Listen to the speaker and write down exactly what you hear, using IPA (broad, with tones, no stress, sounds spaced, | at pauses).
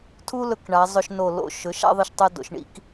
tʰ u˥ l ɵ˧ k ɳ a˩˧ zˤ ɵ˧ ʃ n o˧˩ l o̰˧˩ ʃ ɵ˩˧ ʃ a̰˥˧ ðˤ ɨ˧˩ ʃ tˤ e˧ d o̰˩˧ ʃ ɳ ḭ˧ k